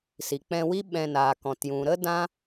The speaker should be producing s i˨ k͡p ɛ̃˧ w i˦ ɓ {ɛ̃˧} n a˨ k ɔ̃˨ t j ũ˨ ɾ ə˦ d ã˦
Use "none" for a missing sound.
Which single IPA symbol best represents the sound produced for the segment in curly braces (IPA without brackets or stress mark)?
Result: ɛ̃˧